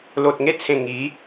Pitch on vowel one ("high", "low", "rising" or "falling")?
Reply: low